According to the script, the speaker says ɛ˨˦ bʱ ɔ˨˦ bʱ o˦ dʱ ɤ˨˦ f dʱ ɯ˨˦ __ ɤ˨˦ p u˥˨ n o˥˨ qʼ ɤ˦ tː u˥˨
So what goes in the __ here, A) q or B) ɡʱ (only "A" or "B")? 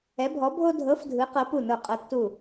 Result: A